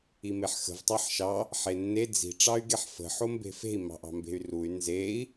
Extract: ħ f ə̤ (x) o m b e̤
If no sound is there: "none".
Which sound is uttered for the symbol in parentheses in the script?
ħ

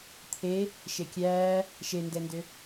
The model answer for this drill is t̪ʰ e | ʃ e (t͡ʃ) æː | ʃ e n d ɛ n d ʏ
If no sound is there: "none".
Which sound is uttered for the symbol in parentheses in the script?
kʲ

